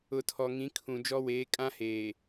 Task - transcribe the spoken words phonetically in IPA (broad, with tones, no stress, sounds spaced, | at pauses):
ʊ˨ tʰ ɔ˨ ŋ ĩ˨˦ kʰ ũ˨ d͡ʒ ɔ˦ w eː˨˦ kʼ ã˦ h eː˨